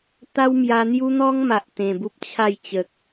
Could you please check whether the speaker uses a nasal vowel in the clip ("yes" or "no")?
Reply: yes